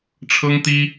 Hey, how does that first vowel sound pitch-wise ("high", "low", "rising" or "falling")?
high